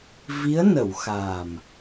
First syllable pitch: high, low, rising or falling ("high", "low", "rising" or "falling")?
rising